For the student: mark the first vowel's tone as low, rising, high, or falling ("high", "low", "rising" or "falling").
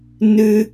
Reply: high